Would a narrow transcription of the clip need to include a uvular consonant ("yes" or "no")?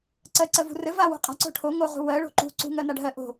yes